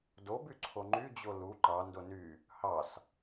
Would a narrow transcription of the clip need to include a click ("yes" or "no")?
yes